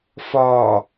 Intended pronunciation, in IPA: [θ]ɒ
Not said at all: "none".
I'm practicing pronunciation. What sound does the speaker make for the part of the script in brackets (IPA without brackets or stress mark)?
f